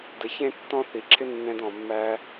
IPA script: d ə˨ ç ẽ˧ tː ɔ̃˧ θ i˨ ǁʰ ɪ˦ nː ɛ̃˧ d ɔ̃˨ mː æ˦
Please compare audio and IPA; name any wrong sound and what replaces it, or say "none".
none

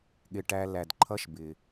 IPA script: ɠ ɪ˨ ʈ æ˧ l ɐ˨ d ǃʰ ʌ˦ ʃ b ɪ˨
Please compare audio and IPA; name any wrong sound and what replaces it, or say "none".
ɐ˨ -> æ˨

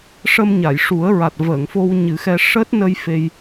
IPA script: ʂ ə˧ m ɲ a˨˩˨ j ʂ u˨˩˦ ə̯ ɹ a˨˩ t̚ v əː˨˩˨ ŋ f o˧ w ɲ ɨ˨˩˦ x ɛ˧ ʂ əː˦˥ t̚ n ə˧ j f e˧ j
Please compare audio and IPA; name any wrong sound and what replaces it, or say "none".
none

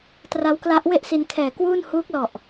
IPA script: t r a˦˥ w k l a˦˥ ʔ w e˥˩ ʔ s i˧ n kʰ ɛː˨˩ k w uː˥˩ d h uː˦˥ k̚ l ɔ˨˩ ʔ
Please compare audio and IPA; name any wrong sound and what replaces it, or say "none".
d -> n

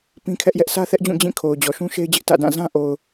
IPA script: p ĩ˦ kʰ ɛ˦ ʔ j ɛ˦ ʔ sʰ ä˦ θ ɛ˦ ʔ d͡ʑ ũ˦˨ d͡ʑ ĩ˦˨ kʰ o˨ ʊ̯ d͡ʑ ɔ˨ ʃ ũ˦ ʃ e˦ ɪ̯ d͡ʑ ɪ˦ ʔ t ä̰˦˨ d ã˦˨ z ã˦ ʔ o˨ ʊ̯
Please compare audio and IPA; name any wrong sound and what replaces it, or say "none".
none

